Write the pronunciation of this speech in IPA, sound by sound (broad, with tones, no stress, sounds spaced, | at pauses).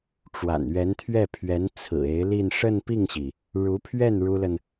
ʈ͡ʂ w a̰˨˩ n ɥ ɛ˧˥ n t̪ʰ ɥ ɛ˥˩ pʰ ɥ ɛ˧˥ n t͡sʰ ɹ̩˨˩ e˧˥ ɪ̯ l i˥˧ n ʂ ə˥˧ n p i˥˩ ŋ ɕ i˩ | ɻ u˧˥ pʰ ɥ ɛ˥˩ n ɻ u˥ l ə˨ n